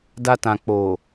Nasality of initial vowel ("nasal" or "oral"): oral